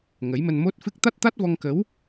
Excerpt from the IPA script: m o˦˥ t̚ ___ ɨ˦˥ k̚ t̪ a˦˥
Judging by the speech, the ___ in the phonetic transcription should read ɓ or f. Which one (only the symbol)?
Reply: f